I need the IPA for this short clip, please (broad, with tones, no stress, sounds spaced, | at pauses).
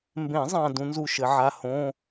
m b ẽ˨˩˦ zˤ ã˨ d ũ˨˥ n z u˦˨ ʃ ɘ˨˩˦ ʕ a˧˥˧ h õ˧˥˧